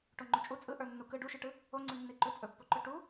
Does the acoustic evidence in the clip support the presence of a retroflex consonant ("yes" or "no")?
yes